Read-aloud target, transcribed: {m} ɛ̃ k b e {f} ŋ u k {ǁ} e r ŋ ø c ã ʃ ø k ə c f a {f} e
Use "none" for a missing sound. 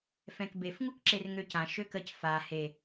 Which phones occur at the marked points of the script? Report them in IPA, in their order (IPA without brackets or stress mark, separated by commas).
f, f, ǁ, h